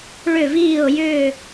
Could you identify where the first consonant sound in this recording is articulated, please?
retroflex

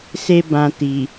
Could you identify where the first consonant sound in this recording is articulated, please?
alveolar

